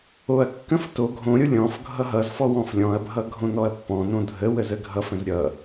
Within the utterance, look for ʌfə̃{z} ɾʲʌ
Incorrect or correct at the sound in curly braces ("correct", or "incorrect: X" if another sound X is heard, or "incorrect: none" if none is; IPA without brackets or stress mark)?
correct